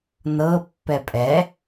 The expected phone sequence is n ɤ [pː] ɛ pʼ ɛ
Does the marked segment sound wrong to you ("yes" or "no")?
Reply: no